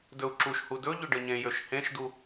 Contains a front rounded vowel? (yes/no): yes